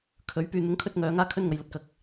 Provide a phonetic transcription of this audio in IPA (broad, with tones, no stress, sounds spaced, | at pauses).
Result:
kʰ ɵ˨˥ ɥ p yː˧ n̪ ʊ˨˥ ŋ kʰ ɵ˥ t̚ ŋ œː˧ ŋ aː˥ kʰ ɵ˥ n ŋ ɐ˧ j l ɐ˧ t̚ k ɐ˧ k̚